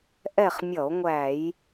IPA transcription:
ʔ ɛ˦˨ χ mʲ ʌ˧˩˧ o̯ ŋʷ æ˧˩˧ j

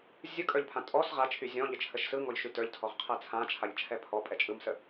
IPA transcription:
zʲ ɯ kʼ ə˞ ʎ pʰ ã tʼ ɔ s ʁ a t͡ʃʰ y zʲ ɔ̃ ʎ ə t͡ʃʰ ə ʃ s ɯ ŋ ɔ ʎ ʃ y t ə˞ ʎ tʰ ɔ ʁ qʰ ɛ t͡sʰ ã t͡ʃʰ a ʎ t͡ʃʰ ɛ pʰ ɔ pʼ ɛ t͡ʃʼ ɯ m s ə

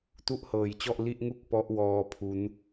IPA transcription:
t u˥˩ ʔ h ɤː˨˩ j t͡ɕ ɔ˥˩ ʔ l i˥˩ ʔ ŋ u˥˩ k̚ p ɔ˦˥ ʔ w ɔː˧ pʰ u˦˥ n

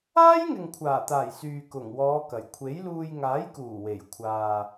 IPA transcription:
aː˥ j ŋ ɪ˨ ŋ kʷʰ aː˨˩ t̪ aː˨˩ j s yː˨ k ʊ˨˩ ŋ w ɔː˨˧ k ɐ˨˩ j kʷʰ e˨˥ j l uː˧ j ŋ aː˨˥ j k uː˨˩ w e˨˩ j kʷʰ aː˨

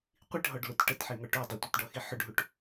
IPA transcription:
qʷ i ʈ ɦ ɔ ɖ l ʊ t ʈ ə t ħ i ŋ ɔ ʈ o dˤ ɨ tʷ i t ɖ ɔ x i ħ ʊ ɖ ɦ u ʈ

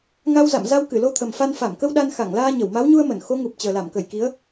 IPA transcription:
ŋ a˧ w z a̰˧˨ m z a˧ w k ɨ˧˩ l o˧ t̪ʰ ə˨˩ m f a˧ n f a˧˩ m k ə˧ w ɗ a˧ n x a˧˩ ŋ l aː˧ ɲ ə˧˩ w m a˨˦ w ɲ u˧ ə̯ m ə˧˩ n x o˨˦ ŋ u˨˩ p̚ t͡ɕ əː˨˩ l a˧˩ m k ə˧˩ j k i˨˦ ə̯

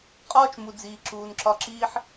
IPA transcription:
qʼ ɒː˦ t͡ʃ m u˨ d͡z iː˨ ǁ uː˨ n ǁ ɒ˧ ǁ iː˦ ħ

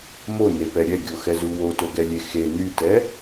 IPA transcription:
m o n e p ɛ ɾʲ ɛ ɡʲ o x ɛ z u w o t o ɡ ɛ lʲ e x e n y t ɛ

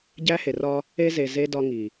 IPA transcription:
ɟ æ˦ h e˨ r ɒ˦ | e˦ z e˨ z e˦ d ɒ˦ ŋ i˨

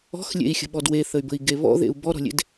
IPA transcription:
ɔ̤ x lʲ ḛ i̯ xʲ ə̤ ɓ ɔ d w e θ ə y̯ b ə̤ i̯ ɡ e β ɔ̰ ð ḛ u̯ b ɔ ɾ ɔ̤ lʲ ḛ d

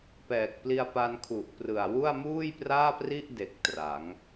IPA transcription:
p ɛː˨˩ k̚ p l i˧ a̯ p a˧ n kʰ u˨˩ ʔ p r ɯ˨˩ a̯ w u˥˩ a̯ m uː˥˩ j p r aː˥˩ p r i˥˩ ʔ d e˨˩ k̚ t r a˩˦ ŋ

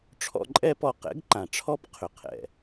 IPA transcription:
ʈ͡ʂʰ ɔ̰˧ ǃʼ ɛ˦ p ɔ˧ q ɛ̰˨˦ ɡ ǃ ã˨ ʈ͡ʂʰ ɔ˦ p qʰ ʏ˨ qʰ ɛ̰˨

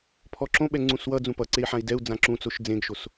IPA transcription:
pʰ ɔ ǁ õ ɓ ɛ ŋ͡ǀ ũ s w ʌ d͡z ũ p ʌ ǀ e i̯ ħ ã i̯ d ɛ u̯ d͡z ã ǁ ũ t͡s o ʃ d͡z ẽ ɡ ʃ o s

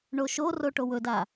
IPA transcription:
ɳ o ʃ o r o ʈ o w ɵ d a

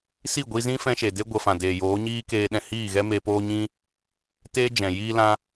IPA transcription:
s i˦˨ ɡʷ i˧ z ĩ˦ f ɛ̃˦ ʃ e˨ d e˦ ɡʷ ə˧ f ã˨ d eː˨ j oː˨˦ ɲ iː˦ k eː˧ ɗ ɛ̃˧ h iː˦˨ ɣ ɛ˦ m eː˧ p oː˦ ɲ ĩ˦ | t eː˦ d͡ʒ ɛ̃˨ j iː˧ l ã˧

